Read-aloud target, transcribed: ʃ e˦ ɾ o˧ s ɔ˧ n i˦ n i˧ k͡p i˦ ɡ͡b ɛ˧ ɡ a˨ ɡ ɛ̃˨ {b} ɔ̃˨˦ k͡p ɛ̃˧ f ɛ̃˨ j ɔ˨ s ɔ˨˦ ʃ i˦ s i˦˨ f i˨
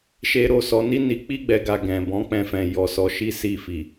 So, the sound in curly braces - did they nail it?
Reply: yes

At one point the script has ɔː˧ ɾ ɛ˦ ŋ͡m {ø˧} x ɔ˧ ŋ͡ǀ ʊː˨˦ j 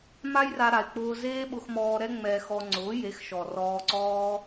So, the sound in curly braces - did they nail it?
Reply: no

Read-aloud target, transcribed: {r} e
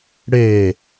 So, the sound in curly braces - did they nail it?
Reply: no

